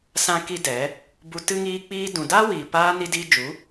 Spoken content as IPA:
s ã˦ k i˦ d ɛ˨˦ | b u˧ t ɨ˦ ŋ iː˧ k͡p iː˧ d ũ˨ d aː˦ w iː˨ p aː˧ n i˦ d iː˦ d͡ʒ u˨˦

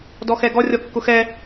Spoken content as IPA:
d ɔ x ɛ ɡ ɔ rʲ ɔ kː ʊ x ɛ

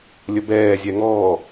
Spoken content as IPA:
lʲ ə b ɛː zʲ ɛ ŋ ɔː

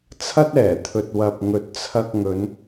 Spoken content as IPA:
t͡sʰ ɐ˥ t̚ ɛː˨˩ t̪ʰ ɵ˨ t̚ w ɐ˨ p̚ ŋ ɵ˨ t̚ t͡sʰ ɐ˧ k̚ ŋ ɵ˨˧ n

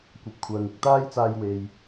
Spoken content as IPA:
kʷ ɐ˨˥ p̚ kʷʰ œː˨ ŋ ɪ˧ k̚ t̪ aː˥ j t͡s aː˧ j w e˨ j

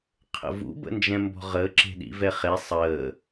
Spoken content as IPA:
qʰ ə̰ v ṵ b ə̰ n d͡ʒ ɛ̃ m b ɔ̤ ʁ əː ǁ e̤ ɗ ḭ v ɛ χ e sˤ əː

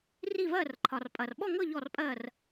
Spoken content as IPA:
r i˥˧ v ɜ˥˧ r ǃʰ ɒ˨ r pʼ ɐ˨ r ɓ ɔ˥˧ ŋ ɤ˥˧ ʎ ɔ˥˧ r pʼ ɜ˥˧ r

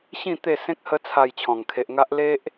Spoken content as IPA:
ɕ ĩ˥˧ t̪ e˥˧ s ẽ˦ k̚ h ə˦ t͡sʰ a˧ j t͡ɕʰ ɔ̃˨˩ ŋ kʰ e˨ ʔ ŋ a˦ ʔ l e˦ ʔ

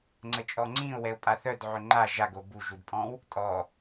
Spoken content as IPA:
ŋ͡ǀ ə t͡ʃʼ ɔ ŋ͡ǀ ĩ ʊ̯ w ɛ ʊ̯ pʼ a θ œ d ʕ ø ŋ͡ǃ a ʒ a ɡ o b u ʒ u d pʼ ɔ̃ w | tʼ ɔ

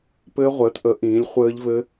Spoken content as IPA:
p ɘː˦˥ ʁʷ ɘː˨˥ t ʔ ə˨˥ ʔ ĩː˨˥ lʲ χʷ ɘː˦˥ ʎ v ɘ˦˥

